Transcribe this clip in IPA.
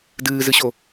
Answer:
d ɨː z ɨ ɕ o

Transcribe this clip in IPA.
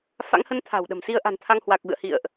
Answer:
f a̰˧˥ ŋ h ə˨˦ n t̪ʰ a̤˨˩ w ɗ ə̤˨˩ m s i˧ ə̯ ʔ a̤˨˩ n t̪ʰ a˧ ŋ h w a˨˩ k̚ v ɨ̰˧˨ ə̯ h ḭ˧˨ ə̯ ʔ

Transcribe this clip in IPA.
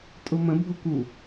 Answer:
tʼ ʊ m ə̃ bʱ ʊ k u

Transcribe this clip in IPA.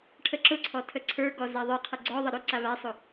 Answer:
ʈʰ ə ǁ ʊ ǀʰ ɔ tʰ ə ǀʰ ə˞ ɡ ɔ z a ðˤ ə˞ qʰ ə ɡ͡ǀ ɔ ðˤ ə ɾ ʊ ǀ a β a sˤ ʊ

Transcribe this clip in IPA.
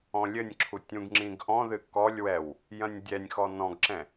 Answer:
ɔ̃ lʲ ɘ nʲ ǁʰ u tʲ ũ ɡ ŋ͡ǁ ĩ ɡ ʔ ɔ̃ ð ɨ k ɔ lʲ w ɛ w | j ɐ̃ nʲ dʲ ɛ nʲ x ɔ n ɔ̃ ɡ ǁ ɛ̃

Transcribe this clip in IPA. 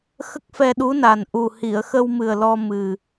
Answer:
x ə˦˥ k̚ f ɛ˧ ɗ u˧˥ n a˨˩ n ʔ u˨˩ h i˨˩˨ ə̯ x ə˧ w m ɨ˨˩ ə̯ l ɔ˧ m ɨ˨˩

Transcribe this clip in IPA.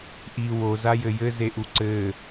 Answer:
ʔ i w o z a j ɘ j ɘ z e ʔ u ǀ ɘ

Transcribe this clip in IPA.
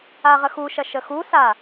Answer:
a ʁ ə x u ʃ ɐ ʃ ə x u s a

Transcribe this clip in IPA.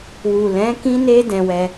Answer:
w u˨ l ɛ̃˨˦ k ĩ˦ n e˦ d ɛ̃˧ w ɛ˧

